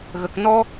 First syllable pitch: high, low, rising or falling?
low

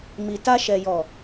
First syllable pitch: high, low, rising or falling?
low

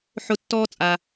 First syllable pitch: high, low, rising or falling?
high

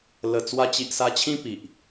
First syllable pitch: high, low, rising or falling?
low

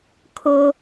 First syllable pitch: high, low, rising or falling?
high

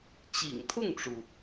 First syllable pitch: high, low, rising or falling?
low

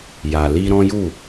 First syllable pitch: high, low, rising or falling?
low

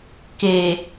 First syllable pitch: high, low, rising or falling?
low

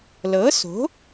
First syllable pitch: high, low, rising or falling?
rising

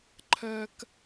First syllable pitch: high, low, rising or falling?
high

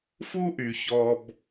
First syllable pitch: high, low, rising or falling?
high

